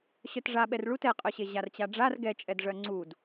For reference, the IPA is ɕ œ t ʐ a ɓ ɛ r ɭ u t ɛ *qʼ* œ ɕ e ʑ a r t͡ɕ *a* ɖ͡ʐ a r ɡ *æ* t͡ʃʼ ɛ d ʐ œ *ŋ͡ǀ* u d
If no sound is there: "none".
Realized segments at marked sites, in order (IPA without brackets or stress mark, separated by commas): qʼ, a, ɛ, ŋ͡ǀ